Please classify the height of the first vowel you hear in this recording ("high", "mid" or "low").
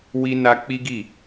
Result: high